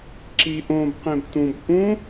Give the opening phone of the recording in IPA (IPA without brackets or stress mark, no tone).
ǁ